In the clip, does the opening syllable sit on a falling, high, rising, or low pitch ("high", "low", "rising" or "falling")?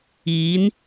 rising